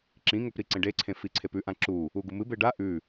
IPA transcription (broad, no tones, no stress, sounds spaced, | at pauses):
ǁ ĩ ŋ ɵ p ɾ i ǀ ẽ ɖ e ǀʰ ẽ f i ǀʰ e p ʉ ʔ ã ǁ u | u ɡ u m ɨ b e ɖ a ʔ ʉ